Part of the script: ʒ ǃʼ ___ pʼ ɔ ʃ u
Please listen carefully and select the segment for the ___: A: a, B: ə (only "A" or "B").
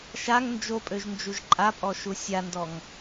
A